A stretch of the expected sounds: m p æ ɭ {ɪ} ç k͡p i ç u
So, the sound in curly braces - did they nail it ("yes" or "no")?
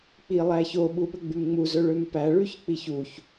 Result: no